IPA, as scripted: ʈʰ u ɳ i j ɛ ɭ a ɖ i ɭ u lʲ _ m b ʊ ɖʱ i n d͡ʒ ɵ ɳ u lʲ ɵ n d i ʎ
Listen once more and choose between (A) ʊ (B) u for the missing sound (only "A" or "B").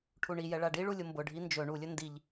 A